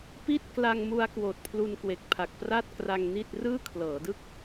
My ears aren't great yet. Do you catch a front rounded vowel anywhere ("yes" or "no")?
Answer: no